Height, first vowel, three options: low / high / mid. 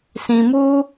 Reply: high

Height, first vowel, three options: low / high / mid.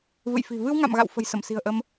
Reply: high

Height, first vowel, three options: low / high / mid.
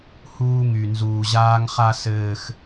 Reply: high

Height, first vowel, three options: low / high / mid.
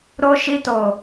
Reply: mid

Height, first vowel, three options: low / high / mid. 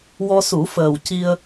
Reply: mid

